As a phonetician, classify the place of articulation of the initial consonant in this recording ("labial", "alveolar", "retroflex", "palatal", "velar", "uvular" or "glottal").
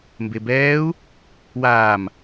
labial